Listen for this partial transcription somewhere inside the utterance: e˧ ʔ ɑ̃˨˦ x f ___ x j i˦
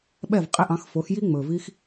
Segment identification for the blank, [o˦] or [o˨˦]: o˨˦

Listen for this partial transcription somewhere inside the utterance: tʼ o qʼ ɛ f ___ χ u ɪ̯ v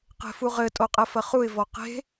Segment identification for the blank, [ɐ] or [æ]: ɐ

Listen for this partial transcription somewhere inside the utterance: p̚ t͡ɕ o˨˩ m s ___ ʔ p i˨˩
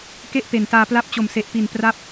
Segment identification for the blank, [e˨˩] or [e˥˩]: e˨˩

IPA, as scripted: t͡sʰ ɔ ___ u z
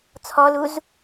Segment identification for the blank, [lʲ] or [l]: l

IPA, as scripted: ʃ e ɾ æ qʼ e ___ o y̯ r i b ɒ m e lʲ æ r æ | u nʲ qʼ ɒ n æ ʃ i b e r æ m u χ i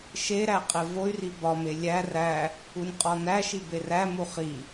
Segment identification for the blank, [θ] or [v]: v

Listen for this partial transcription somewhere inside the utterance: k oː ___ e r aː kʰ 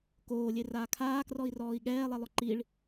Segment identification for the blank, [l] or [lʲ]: lʲ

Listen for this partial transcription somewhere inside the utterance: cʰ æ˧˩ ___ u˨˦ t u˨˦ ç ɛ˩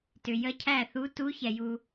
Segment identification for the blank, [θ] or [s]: θ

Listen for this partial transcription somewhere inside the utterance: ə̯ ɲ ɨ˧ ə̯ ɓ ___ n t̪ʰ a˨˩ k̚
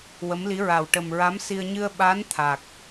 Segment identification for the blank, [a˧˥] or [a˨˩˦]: a˧˥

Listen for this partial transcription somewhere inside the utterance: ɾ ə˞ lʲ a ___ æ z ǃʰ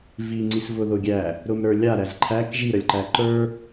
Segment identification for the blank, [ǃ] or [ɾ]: ɾ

